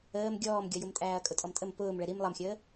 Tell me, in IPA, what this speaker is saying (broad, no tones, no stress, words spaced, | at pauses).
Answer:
əːm ɡʲɔːmɡʲʌjʊmtʼæːɐ̯ kʼʊtʼɔmtʼəm pʊːmɭɛ ɾim lˠʌmxʲəː